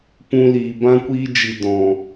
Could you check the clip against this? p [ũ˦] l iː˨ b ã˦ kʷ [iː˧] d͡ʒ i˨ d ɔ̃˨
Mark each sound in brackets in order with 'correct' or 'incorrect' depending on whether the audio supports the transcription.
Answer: incorrect: ũ˧, incorrect: iː˦

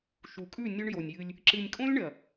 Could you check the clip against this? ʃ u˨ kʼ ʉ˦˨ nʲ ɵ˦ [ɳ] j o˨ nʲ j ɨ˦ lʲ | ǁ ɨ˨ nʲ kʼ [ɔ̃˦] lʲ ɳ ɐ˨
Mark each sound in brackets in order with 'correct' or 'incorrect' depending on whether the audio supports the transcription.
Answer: correct, incorrect: õ˦

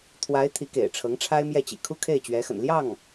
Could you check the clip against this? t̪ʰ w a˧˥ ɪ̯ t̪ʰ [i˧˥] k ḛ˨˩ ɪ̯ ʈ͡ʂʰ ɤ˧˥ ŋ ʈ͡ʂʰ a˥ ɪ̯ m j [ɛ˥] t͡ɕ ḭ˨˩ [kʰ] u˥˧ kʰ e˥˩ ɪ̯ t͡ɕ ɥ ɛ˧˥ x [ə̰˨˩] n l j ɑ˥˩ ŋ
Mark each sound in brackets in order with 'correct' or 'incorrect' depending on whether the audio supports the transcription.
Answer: correct, incorrect: ɛ˥˩, correct, correct

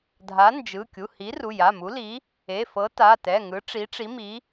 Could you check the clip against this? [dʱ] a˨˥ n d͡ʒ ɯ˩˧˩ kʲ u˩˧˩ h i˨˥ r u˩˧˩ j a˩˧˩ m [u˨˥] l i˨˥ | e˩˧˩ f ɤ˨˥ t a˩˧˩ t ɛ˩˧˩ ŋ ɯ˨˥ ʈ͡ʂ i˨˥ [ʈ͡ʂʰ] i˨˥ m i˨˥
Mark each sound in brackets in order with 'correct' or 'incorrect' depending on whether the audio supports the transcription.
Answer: correct, correct, incorrect: ʈ͡ʂ

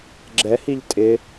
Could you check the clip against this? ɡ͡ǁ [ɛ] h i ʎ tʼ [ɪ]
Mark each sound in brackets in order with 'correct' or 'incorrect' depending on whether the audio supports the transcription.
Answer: correct, correct

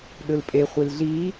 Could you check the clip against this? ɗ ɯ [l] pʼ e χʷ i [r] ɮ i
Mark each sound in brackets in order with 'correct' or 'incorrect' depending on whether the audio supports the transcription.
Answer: correct, incorrect: l

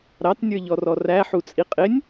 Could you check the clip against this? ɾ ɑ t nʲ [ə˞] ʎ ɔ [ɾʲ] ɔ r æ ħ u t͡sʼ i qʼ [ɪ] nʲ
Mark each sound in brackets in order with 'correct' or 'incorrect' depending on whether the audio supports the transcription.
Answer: correct, incorrect: r, correct

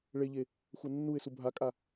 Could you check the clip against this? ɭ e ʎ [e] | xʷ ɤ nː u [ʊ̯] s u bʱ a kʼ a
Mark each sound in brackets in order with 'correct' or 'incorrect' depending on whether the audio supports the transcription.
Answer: correct, incorrect: ɪ̯

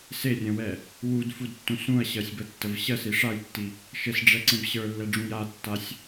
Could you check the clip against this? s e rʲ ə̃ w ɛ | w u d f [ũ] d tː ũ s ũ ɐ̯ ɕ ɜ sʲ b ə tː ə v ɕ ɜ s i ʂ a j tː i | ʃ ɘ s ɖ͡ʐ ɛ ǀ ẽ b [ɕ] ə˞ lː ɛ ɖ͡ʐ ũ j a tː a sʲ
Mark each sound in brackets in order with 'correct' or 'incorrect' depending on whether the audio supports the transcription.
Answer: incorrect: u, correct

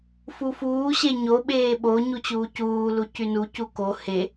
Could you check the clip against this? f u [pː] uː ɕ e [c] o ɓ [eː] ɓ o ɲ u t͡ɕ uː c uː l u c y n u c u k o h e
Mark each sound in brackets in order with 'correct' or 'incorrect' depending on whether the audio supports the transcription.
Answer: incorrect: f, incorrect: ɲ, correct

